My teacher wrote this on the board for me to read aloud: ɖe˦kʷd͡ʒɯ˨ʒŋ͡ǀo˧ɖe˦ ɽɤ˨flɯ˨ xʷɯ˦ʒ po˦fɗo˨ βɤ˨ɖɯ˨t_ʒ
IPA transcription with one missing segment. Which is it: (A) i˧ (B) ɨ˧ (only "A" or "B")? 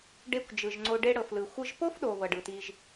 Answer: A